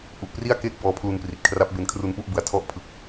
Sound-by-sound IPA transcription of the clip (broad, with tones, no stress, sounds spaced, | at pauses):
ʔ u˨˩ ʔ p r i˥˩ a̯ k eː˥˩ k̚ b ɔː˧ pʰ l u˧ n p r i˨˩ t̚ kʰ r a˦˥ p̚ b e˧ n kʰ r u˧ n p u˥˩ ʔ b ɯ˩˦ a̯ tʰ ɔ˦˥ ʔ pʰ ɯ˨˩ k̚